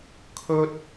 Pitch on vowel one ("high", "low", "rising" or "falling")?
high